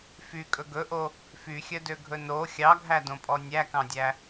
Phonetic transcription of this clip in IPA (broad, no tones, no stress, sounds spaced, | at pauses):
f y kʼ ɵ ɡ ɵ ʔ o | f y xʲ œ d ø ɡʱ ɵ n o xʲ ɑ ɡʱ æ d õ pʼ ɔ nʲ æ k ɑ̃ dʲ æ